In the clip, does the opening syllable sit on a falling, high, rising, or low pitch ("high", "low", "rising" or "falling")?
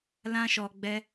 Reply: high